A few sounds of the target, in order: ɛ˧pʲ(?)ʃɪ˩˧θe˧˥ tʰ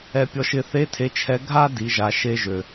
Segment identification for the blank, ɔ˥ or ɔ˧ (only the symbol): ɔ˧